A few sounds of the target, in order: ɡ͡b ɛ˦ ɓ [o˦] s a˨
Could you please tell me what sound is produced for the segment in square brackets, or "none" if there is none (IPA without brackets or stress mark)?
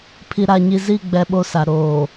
o˦